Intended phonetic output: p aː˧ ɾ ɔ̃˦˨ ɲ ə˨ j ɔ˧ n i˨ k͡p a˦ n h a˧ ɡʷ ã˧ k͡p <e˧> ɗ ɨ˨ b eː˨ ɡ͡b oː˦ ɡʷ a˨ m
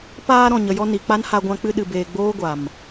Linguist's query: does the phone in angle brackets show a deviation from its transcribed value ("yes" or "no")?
yes